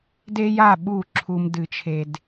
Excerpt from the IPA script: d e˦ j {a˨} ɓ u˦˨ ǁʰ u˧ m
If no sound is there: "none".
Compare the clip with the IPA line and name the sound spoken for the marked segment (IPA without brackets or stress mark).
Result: a˦˨